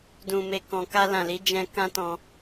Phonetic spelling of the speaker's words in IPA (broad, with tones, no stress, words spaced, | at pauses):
dũ˨me˨kɔ̃˨ka˧ lã˨li˨˦ d͡ʒɛ̃˧ kã˦tɔ̃˧